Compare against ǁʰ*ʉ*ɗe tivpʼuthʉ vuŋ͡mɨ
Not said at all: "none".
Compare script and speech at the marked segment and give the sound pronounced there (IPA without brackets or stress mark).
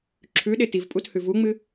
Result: ʉ